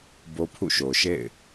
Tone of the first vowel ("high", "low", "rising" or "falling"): high